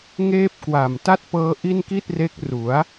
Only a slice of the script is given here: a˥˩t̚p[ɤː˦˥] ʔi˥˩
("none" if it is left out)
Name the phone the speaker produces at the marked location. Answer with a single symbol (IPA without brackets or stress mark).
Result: ɤː˦˥